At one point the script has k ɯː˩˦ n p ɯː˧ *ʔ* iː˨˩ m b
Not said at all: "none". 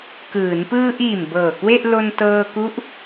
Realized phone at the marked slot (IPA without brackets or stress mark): ʔ